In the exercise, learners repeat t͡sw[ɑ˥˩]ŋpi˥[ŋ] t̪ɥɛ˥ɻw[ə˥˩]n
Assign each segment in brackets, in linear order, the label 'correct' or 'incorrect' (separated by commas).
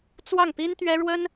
correct, incorrect, incorrect